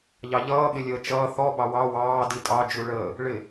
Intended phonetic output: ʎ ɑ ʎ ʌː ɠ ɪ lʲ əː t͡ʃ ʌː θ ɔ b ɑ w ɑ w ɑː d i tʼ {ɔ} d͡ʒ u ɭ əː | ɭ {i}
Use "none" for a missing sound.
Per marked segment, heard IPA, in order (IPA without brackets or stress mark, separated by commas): ɑ, ɪ